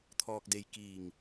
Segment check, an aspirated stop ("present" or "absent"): present